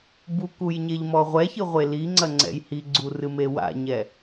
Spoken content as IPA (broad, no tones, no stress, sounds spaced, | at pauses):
b u k u j ɲ e ʎ m ɔ ʁʷ ɛ ç ɨ ʁʷ e l i ŋ͡ǀ ɐ ŋ͡ǀ ɛ̰ j h i ɡ͡ǀ u r ɨ m e w a̰ ɲ ɛ